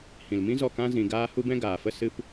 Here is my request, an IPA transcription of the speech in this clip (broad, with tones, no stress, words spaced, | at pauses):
hĩ˨lmĩ˦zɔ˦˨ kã˦zĩ˧ ɡaː˦hu˦bɛ̃˦ ɡaː˨fə˧sɨ˧p